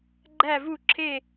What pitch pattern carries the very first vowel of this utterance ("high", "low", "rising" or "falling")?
falling